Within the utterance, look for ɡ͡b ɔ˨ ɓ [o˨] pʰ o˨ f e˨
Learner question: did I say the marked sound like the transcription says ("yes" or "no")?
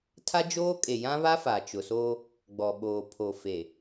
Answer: no